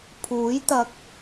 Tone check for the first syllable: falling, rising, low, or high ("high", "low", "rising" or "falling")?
rising